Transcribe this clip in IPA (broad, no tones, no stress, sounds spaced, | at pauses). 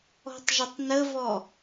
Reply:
ɔ̤ tˤ ʒ ə tˤ n ə v ɔ